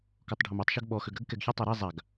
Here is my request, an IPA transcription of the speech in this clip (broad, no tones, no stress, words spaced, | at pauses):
kɔtˤɖʱomatˤʃøɡ ɓɔ xøɡɾəɡ kɛɡçʊ tˤøɾɛ zˤaɡ